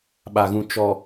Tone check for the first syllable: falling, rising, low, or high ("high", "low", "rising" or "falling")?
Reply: low